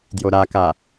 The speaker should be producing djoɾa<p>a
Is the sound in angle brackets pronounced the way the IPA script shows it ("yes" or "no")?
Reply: no